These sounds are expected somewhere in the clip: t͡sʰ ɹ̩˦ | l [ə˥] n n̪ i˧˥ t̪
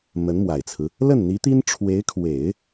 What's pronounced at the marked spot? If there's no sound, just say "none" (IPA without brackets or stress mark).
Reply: ə˥˩